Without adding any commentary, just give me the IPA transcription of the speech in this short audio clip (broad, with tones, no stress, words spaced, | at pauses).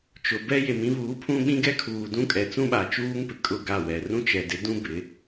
t͡ʃʊ˨bɛ˦ je˨mĩ˦βuː˨˦ pʰũ˦ɓĩ˦ ɡɛ˦kʰuː˨dũ˦kʼɛ˨ t͡sũ˦ɓa˨t͡ʃuː˦ŋpɪ˨ kʼʊ˦˨ɡa˦˨wɛ˨ rũ˦t͡ʃɛ˨dɪ˨˦dũ˦ bɪ˨˦